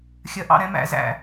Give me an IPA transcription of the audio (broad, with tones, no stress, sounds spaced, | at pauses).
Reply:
xʲ ɜ˨˦ ʔ ɑ̰˦˨ ɾ ɛ̃˦ m æ̰˨˦ z æ̰˨